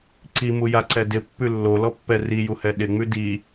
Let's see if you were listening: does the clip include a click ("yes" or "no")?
yes